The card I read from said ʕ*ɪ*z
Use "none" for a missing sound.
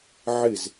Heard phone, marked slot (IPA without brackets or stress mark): ɪ